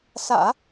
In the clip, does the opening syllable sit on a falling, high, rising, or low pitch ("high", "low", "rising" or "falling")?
low